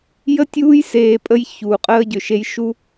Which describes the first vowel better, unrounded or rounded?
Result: unrounded